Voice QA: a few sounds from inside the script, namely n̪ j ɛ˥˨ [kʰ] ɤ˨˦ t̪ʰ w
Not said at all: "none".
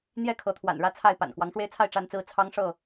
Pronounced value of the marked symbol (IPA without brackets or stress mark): kʰ